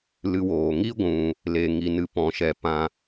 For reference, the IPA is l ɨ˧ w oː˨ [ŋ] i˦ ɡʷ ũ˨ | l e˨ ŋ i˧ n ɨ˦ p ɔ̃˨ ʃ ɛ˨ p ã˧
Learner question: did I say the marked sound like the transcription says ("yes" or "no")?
yes